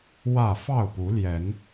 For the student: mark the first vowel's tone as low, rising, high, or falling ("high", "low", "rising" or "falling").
falling